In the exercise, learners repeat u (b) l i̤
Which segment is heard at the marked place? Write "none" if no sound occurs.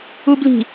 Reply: b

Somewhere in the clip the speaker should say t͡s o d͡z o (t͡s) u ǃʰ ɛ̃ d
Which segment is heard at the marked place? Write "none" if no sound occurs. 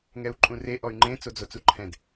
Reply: t͡s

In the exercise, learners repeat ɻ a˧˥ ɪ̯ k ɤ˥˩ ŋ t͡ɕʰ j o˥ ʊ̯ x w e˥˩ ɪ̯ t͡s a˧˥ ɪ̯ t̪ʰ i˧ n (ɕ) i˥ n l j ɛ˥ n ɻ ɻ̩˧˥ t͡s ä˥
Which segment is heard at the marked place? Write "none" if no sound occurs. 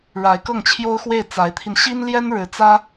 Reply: ɕ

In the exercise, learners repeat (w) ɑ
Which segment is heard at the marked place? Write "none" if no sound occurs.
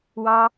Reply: w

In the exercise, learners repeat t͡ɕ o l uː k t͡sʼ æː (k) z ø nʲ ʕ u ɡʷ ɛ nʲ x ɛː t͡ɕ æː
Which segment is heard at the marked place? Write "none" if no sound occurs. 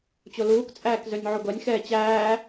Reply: k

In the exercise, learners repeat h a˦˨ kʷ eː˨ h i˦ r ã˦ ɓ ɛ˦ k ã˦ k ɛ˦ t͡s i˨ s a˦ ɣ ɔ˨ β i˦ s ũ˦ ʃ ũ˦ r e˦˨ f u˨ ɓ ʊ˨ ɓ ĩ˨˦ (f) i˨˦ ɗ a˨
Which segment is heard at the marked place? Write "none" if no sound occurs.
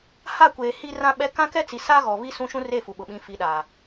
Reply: f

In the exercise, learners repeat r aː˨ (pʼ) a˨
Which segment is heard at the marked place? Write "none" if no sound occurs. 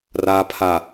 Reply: pʰ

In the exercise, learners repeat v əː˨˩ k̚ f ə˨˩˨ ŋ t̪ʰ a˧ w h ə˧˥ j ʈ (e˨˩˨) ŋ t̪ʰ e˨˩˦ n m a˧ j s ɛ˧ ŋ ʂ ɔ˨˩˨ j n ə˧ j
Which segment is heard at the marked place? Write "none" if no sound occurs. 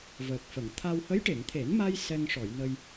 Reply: e˨˩˨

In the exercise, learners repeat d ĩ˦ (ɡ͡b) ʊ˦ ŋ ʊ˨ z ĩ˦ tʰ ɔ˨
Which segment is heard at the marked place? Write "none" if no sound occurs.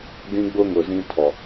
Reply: ɡ͡b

